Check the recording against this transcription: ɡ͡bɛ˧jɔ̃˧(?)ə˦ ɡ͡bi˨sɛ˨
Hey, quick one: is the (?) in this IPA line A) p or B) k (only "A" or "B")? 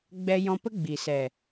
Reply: A